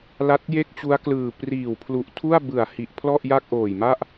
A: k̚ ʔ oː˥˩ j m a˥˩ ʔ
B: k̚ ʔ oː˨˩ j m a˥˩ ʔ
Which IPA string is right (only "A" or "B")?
B